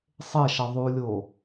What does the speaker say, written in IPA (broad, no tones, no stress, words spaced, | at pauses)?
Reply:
sˤeʃʌ ðˤulʲo